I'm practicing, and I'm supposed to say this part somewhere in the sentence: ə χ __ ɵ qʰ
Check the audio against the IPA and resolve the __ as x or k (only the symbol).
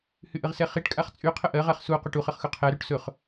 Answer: x